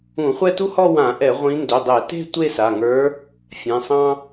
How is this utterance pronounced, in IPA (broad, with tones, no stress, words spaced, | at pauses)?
ũ˧˩˧χʷɛ˥˧tu˥ hɔ˥˧wã˧˩˧ʔɛ˧˩˧ ʁʷĩ˧˥ ndɵ˩˧˩dˤɛ˧˩˧te̤˥˧ tʷe˥˧sa˩˧˩ŋə˞˧˥ | fʲɛ̃˩˧˩sˤɑ̃˥